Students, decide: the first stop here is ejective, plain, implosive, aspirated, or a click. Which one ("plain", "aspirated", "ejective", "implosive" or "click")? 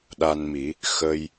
implosive